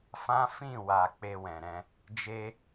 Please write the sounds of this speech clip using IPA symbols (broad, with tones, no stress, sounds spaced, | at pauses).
f ã˦ f ĩ˦˨ w a˨ k͡p e˧ w ɛ̃˨ ɾ ɛ̃˧ | d͡ʒ e˦